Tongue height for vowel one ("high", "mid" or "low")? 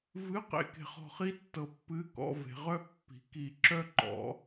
high